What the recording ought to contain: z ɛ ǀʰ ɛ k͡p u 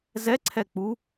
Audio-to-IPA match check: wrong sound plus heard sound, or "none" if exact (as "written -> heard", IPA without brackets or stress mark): none